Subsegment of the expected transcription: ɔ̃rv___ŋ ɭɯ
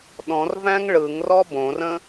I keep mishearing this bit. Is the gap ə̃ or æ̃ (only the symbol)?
æ̃